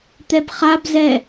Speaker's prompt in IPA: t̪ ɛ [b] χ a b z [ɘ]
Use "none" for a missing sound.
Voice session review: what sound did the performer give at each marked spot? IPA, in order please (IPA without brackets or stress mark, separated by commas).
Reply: b, ɛ